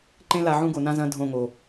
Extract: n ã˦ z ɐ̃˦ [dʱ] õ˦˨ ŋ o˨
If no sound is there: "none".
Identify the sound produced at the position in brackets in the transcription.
dʱ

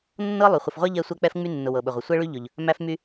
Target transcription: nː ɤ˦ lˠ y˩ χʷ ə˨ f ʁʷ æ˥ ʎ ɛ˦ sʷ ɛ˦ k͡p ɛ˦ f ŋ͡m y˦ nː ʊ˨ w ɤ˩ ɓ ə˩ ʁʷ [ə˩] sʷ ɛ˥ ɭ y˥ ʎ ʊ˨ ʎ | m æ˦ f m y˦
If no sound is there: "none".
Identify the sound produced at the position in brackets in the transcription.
ə˩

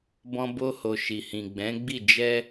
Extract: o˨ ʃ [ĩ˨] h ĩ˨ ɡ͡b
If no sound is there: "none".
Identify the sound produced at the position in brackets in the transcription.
i˨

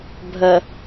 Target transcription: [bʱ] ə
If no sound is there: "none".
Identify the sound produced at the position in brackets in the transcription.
bʱ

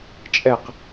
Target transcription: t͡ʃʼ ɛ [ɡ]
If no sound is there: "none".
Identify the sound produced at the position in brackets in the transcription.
q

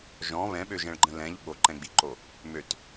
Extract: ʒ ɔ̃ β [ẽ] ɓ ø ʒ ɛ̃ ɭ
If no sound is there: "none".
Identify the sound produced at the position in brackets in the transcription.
ɛ̃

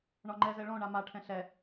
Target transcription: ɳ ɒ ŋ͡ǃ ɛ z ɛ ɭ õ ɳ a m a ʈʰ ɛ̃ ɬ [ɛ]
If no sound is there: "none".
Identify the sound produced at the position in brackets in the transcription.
ɛ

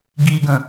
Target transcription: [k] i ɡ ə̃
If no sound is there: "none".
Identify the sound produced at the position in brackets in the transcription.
ɡ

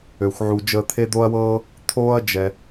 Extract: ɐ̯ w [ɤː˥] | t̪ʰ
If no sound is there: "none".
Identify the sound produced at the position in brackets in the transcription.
ɤː˥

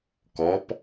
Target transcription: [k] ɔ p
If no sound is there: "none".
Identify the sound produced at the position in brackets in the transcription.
k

